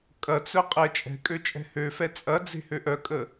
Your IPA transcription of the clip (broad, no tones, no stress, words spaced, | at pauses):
kʼɐt͡sœ qʼɛt͡ʃʼɛ̤kʼø t͡ʃʼɛ̤høfɛ t͡sʼɐd͡ze̤ høʔœkʼə